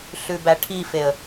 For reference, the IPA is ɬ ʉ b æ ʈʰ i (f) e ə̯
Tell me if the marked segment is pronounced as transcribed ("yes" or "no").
yes